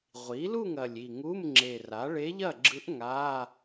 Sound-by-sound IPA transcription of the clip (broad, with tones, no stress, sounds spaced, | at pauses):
ʁʷ i˩˥ l u˥˨ ŋ ɐ˨˩ lʲ i˨˩ ŋ u˧˥˧ m ŋ͡ǁ e˨˩ r a˩˥ ɭ e˧˥ ʎ ɐ˥˨ ɡ͡ǁ ɯ˧˥ ʔ ŋ a˧˥˧